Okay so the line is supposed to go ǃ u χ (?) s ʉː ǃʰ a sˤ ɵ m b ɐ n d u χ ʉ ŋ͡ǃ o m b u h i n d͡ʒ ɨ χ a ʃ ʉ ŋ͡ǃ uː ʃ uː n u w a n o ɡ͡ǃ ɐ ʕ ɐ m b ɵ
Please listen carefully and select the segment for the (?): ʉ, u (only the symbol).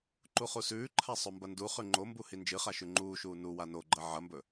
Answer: u